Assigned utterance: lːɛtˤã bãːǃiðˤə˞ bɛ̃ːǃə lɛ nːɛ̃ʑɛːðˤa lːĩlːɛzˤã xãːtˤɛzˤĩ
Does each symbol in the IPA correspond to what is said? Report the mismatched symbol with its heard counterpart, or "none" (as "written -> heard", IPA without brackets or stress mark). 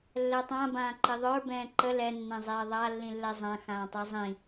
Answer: ʑ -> zˤ